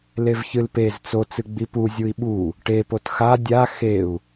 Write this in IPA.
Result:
levçɨlpez t͡so t͡sɨɡ͡bipu zʲui̯ɓu | ʈe potxa dʲa xeu̯

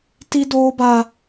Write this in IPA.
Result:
ti˦doː˦ba˦

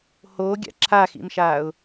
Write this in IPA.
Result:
hoːɡʲa̰ ǁʰaxḭmʃaːʊ̯

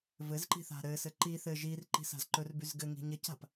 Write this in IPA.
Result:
vɘzǃi̤ θa̤ɾɘsɘ ǃi θɘ ʒir ǃi̤sa̤zǃɵrbyz ɡɘŋi̤ ɲɘca̤p

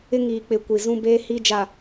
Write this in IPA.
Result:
ɪ˦ŋiː˨k͡pɪ˨ kʷi˨zũ˦beː˦hi˦ d͡ʒa˨

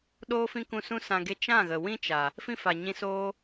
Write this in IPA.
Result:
ɗoː˦fĩ˦kũ˧sũ˦ sã˧ɡe˦ t͡ʃã˦˨ɣə˨wĩ˦t͡ʃa˨ | fĩ˦fa˨ɲĩ˧ soː˦

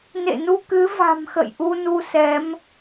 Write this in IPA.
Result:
nḛ˧˨nu˧ kɨ˨˦va̤˨˩m xə̰˧˨jʔu˧ nu˧sɛ˨˦m

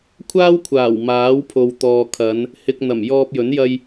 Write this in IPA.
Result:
kʷʰaː˥wkʷʰaː˨˩w maː˨˥wpʰo˨wt̪ɔː˨ kʰɐ˨˧n | hɪ˧k̚n̪ɐ˨˩mjɔː˧p̚jɵ˨˥n jɐ˧j

